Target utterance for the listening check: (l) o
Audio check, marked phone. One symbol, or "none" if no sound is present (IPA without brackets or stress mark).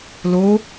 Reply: l